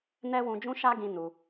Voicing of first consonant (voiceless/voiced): voiced